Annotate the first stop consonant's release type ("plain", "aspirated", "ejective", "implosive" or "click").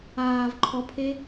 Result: click